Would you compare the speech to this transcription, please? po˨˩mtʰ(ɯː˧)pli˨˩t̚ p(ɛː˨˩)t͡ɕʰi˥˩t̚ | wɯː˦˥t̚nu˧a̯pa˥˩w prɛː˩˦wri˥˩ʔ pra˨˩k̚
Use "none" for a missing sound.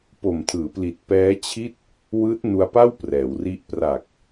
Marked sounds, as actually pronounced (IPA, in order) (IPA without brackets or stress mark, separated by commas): ɯː˩˦, ɛː˦˥